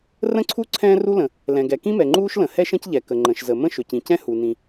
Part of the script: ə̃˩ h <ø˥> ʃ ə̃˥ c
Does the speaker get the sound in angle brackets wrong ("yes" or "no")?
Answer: yes